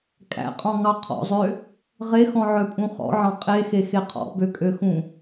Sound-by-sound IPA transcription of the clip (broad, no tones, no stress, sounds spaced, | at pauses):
kʼ æ̰ qʼ ɔ̃ ŋ ɑ qʰ ɔ̰ zˤ ø | ʁ e x ɔ̃ ʕ œ pʼ ũ χ ɔ̰ ʕ ɑ̃ qʼ e x e x e qʰ ɔ̰ b ø kʼ ø x ũ